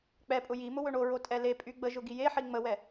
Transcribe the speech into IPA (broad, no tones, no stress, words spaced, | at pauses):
k͡pɛpʼʊ ji mʊwɵɳoɹo tʼɛlepʼy ɡ͡bəʒʊ ɡijeħi ŋ͡məwɛ